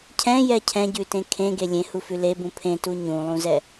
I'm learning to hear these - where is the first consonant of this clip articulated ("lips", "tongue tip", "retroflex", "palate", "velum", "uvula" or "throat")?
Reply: palate